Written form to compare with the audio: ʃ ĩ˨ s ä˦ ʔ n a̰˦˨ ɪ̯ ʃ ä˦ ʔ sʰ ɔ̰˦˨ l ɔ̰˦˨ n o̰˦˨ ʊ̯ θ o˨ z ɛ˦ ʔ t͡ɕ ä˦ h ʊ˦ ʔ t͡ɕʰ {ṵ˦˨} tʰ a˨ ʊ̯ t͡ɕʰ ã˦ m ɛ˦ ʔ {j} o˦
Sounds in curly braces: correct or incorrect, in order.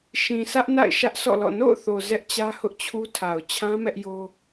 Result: incorrect: u˦, correct

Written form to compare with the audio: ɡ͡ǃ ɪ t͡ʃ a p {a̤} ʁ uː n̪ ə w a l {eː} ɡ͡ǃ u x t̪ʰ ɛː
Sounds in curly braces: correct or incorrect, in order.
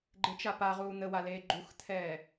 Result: incorrect: a, correct

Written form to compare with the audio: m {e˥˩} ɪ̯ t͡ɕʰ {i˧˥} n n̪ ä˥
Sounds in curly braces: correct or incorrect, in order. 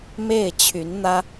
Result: correct, incorrect: y˧˥

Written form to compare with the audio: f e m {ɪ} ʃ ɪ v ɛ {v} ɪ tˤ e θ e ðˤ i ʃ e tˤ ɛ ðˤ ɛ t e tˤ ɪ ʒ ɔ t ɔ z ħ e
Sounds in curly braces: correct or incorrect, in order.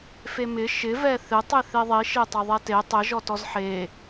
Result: correct, incorrect: θ

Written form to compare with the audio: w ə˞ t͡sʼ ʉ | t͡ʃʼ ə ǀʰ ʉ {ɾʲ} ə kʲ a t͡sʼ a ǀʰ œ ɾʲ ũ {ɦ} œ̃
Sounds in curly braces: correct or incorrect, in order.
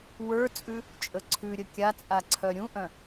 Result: correct, incorrect: ʔ

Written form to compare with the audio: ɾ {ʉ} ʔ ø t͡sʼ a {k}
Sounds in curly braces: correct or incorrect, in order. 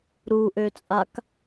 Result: incorrect: u, correct

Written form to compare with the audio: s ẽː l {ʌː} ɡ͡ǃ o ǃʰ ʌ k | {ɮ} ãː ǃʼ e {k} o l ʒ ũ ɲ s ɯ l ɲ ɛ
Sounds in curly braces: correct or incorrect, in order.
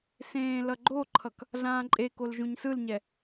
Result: incorrect: ʌ, correct, correct

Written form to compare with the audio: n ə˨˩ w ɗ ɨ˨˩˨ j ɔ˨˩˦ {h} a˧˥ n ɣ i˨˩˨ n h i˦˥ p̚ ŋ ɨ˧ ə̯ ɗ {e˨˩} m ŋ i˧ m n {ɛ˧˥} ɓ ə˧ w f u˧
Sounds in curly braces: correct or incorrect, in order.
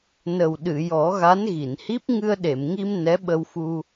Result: incorrect: ɣ, incorrect: e˨˩˨, correct

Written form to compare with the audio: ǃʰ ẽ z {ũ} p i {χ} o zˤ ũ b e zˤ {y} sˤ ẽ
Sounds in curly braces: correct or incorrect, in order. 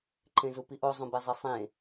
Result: incorrect: u, incorrect: ʔ, incorrect: i

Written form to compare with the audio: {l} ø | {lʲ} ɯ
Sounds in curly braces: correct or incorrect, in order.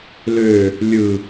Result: correct, correct

